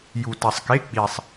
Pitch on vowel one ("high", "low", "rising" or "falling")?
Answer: low